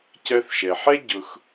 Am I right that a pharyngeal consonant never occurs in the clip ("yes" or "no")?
no